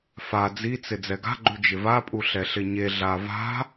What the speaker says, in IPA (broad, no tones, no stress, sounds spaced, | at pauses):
f a d͡z i t͡s ɪ d͡z ɛ ɡ a̤ ɡ͡ǃ u d͡ʒ ɪ v a pʼ u ɬ ɛ ɬ ɪ ɲ e ɮ a v a̤